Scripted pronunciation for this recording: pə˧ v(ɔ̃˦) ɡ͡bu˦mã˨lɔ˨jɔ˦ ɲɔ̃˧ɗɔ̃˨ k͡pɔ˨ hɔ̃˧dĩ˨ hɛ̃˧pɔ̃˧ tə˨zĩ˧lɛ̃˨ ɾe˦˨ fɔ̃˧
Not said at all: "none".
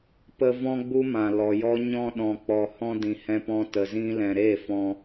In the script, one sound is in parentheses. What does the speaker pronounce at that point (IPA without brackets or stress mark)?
ɔ̃˦